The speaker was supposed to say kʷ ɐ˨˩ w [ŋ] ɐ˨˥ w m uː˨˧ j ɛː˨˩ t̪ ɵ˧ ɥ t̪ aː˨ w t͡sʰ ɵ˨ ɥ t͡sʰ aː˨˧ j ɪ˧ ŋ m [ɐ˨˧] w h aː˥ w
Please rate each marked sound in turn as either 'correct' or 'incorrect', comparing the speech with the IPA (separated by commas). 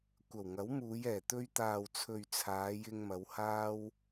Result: correct, correct